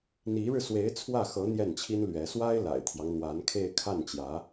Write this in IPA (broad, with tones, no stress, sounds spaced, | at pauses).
n̪ i˧˥ ɻ ɻ̩˧ s w e˧˥ ɪ̯ t͡sʰ w ä˥˩ x ɤ˧˥ n̪ j ɛ˥˩ n t͡ɕʰ i˥ n l ɥ ɛ˧˥ s w a˥ ɪ̯ l a̰˨˩ ɪ̯ t̪ʰ j ɑ˦ ŋ n̪ w a˧˥ n kʰ e˥˧ ɪ̯ kʰ a˥˩ n t͡ɕ j ä˧˥